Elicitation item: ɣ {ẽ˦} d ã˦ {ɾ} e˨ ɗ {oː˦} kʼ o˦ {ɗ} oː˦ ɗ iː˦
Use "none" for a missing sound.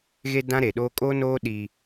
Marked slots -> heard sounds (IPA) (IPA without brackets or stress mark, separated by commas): e˦, ɾ, oː˦, n